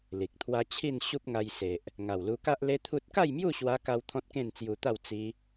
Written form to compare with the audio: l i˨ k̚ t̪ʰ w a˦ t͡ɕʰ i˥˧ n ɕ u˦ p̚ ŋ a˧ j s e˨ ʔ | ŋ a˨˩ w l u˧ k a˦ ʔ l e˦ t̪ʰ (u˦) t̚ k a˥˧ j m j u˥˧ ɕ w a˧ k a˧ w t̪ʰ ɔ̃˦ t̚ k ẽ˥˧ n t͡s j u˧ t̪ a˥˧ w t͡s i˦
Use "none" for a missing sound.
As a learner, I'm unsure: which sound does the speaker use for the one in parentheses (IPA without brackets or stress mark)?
u˦